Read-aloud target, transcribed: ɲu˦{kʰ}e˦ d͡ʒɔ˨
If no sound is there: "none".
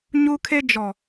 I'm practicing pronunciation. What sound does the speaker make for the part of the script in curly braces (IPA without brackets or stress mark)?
kʰ